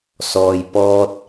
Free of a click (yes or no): yes